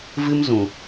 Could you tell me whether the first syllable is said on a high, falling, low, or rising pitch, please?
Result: high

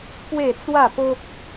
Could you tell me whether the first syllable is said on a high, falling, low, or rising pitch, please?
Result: falling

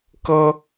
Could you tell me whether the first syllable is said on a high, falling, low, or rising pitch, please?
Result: high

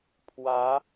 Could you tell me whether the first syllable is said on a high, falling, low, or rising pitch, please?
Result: rising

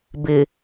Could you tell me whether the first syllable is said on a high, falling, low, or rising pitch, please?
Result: low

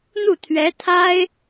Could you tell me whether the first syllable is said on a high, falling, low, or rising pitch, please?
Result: falling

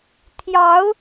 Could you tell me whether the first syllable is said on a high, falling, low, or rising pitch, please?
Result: rising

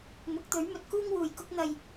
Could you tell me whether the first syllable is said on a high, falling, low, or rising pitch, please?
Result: rising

